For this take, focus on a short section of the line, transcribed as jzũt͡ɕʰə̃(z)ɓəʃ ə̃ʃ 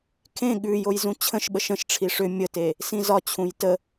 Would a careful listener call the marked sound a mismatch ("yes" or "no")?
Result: yes